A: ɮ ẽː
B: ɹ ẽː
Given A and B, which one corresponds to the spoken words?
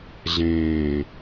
A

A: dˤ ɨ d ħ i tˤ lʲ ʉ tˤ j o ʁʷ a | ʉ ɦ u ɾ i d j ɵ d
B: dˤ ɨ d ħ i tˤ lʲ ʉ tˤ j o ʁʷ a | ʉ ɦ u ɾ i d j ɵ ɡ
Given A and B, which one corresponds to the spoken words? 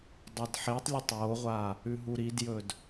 A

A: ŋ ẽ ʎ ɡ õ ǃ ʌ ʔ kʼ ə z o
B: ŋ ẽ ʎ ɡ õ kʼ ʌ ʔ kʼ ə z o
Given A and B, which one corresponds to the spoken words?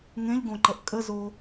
A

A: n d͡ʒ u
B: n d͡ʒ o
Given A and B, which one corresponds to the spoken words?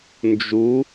A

